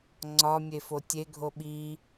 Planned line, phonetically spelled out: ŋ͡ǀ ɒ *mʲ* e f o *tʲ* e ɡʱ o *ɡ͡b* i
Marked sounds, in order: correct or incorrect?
correct, correct, incorrect: ɓ

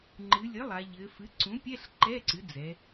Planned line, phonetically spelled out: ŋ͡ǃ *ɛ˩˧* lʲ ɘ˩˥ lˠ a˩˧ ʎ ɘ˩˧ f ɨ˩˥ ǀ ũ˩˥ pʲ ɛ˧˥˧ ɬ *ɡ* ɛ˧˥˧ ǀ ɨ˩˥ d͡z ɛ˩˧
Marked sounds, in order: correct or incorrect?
incorrect: ɨ˩˧, incorrect: ǃ

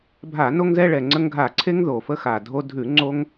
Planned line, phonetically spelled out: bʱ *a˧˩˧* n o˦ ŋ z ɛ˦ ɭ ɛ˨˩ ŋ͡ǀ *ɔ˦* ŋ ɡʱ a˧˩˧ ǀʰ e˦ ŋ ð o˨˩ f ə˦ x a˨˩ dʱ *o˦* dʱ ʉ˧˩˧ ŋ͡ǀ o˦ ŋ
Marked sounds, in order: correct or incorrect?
correct, incorrect: ə˦, correct

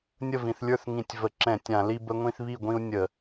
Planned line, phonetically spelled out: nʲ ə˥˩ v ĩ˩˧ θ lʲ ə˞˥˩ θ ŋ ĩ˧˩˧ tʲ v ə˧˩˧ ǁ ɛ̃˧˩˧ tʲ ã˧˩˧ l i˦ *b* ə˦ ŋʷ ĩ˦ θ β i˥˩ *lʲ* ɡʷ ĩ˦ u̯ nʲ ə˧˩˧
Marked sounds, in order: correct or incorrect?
correct, incorrect: none

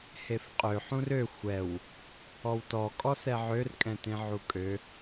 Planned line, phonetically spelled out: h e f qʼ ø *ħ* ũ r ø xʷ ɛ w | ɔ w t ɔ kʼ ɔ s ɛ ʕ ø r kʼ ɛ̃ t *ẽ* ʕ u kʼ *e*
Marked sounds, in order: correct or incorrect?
correct, correct, incorrect: ø

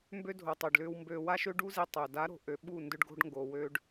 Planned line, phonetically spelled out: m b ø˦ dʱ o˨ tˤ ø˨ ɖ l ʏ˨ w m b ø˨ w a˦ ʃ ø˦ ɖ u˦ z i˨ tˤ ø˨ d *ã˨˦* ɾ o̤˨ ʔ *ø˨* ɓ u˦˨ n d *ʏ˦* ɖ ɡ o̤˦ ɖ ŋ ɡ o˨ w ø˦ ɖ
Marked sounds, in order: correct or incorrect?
incorrect: a˨˦, correct, correct

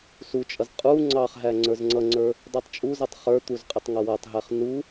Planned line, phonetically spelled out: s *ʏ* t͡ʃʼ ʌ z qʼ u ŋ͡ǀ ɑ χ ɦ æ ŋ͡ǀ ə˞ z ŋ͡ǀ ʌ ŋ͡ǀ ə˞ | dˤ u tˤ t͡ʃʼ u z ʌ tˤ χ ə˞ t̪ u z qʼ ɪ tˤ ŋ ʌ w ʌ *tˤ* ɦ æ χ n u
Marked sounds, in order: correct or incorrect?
incorrect: u, correct

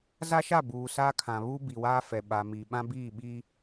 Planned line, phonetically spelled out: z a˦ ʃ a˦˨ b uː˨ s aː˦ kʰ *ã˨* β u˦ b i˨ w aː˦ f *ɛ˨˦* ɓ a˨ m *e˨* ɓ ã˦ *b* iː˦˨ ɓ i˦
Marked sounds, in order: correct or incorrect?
correct, incorrect: ɛ˨, incorrect: i˨, correct

